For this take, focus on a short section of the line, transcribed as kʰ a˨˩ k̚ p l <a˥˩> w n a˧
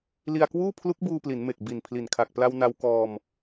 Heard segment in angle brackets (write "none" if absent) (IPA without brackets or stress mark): a˧